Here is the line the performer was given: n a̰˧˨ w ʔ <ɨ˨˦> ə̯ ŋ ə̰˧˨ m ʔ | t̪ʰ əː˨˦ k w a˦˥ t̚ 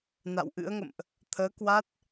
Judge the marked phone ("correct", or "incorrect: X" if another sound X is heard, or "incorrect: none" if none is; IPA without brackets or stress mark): incorrect: ɨ̰˧˥